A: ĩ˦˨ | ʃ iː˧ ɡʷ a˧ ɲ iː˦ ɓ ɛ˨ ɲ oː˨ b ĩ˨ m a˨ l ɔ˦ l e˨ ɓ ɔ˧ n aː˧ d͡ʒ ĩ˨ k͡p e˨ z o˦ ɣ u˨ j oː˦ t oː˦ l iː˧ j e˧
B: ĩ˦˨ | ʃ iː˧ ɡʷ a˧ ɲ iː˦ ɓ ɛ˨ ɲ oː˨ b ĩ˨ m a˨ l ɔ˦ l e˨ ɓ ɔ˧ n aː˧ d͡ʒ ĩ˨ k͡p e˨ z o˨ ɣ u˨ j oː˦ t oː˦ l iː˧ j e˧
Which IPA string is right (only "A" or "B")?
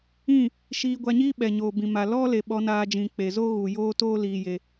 A